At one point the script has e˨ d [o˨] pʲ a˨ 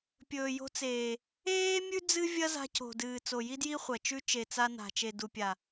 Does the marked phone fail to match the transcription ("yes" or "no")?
yes